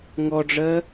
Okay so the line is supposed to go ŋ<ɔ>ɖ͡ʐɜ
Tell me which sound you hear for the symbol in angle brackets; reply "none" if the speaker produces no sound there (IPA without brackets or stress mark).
ɔ